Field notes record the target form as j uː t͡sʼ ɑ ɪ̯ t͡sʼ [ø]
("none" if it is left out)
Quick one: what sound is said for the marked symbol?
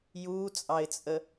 ə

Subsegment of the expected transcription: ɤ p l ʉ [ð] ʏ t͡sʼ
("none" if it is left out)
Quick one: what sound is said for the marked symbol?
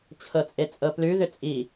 ð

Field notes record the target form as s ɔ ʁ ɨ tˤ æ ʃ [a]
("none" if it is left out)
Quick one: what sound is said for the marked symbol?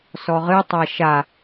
a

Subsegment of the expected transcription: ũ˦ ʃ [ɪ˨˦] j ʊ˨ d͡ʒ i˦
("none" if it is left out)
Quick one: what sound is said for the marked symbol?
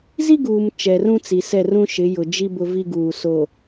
ɪ˨˦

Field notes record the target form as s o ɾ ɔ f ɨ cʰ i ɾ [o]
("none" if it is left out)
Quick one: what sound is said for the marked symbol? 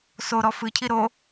o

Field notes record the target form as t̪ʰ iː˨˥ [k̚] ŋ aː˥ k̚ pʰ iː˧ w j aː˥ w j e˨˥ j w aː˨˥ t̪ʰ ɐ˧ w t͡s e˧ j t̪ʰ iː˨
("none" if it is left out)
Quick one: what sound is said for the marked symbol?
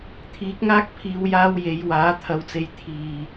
k̚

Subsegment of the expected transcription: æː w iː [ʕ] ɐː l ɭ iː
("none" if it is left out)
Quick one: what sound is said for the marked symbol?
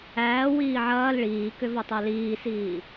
ʕ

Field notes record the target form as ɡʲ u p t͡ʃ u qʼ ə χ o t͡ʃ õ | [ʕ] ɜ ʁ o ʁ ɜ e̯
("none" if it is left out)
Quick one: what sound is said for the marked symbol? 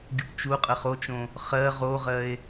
χ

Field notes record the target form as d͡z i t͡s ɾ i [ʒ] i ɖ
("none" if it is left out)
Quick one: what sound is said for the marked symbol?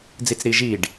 ʒ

